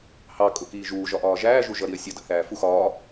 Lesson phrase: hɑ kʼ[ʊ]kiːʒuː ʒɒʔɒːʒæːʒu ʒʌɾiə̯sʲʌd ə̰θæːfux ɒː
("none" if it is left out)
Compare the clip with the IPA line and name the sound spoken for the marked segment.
ʊ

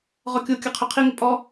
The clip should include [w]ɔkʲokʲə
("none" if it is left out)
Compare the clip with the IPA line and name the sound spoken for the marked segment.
ʁ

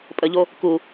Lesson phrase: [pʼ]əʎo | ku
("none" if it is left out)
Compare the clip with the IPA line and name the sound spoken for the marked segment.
pʼ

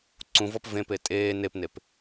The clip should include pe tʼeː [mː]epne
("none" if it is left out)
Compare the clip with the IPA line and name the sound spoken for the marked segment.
n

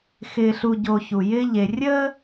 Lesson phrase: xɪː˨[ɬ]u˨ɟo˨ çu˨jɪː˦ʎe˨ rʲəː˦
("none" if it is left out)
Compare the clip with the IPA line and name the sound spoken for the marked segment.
ɬ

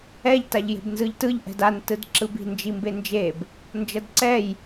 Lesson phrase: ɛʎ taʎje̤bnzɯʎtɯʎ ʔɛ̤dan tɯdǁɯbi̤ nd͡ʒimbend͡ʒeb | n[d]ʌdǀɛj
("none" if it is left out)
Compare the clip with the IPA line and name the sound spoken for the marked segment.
d͡ʒ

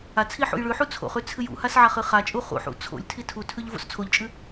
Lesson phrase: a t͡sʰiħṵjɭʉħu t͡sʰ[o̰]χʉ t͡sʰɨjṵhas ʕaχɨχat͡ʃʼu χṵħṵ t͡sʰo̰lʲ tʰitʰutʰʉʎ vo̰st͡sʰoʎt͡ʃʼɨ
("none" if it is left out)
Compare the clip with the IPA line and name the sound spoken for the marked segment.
o̰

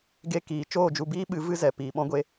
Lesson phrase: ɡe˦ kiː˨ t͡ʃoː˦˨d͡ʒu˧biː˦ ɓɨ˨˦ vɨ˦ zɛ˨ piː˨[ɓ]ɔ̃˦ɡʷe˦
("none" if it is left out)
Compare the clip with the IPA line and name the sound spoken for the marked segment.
ɓ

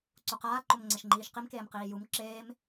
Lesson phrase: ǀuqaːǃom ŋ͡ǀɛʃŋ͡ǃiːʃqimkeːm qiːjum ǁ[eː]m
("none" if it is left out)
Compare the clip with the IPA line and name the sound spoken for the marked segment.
eː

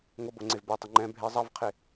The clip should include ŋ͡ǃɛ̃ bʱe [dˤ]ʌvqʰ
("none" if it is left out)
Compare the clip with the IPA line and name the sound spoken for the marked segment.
zˤ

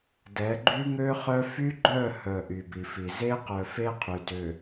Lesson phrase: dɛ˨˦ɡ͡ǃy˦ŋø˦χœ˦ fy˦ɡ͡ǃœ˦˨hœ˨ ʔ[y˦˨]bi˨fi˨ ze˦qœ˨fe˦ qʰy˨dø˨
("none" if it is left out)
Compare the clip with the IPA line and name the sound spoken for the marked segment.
y˨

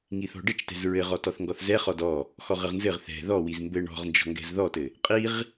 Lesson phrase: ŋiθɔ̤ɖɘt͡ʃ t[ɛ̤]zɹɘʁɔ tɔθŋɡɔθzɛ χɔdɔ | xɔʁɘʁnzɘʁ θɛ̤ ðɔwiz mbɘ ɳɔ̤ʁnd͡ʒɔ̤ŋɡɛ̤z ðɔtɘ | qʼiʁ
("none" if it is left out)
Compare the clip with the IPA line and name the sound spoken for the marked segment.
ɛ̤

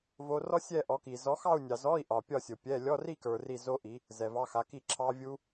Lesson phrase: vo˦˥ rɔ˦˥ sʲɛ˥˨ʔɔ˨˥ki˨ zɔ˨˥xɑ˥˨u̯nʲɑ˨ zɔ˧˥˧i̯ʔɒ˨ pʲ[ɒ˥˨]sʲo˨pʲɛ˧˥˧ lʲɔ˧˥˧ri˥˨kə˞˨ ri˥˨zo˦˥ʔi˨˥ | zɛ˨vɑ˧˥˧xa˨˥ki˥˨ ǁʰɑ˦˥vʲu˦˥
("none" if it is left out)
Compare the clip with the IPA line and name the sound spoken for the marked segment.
ɒ˥˨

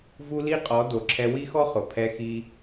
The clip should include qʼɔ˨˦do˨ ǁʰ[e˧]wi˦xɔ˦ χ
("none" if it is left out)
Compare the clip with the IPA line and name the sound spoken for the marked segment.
ɛ˧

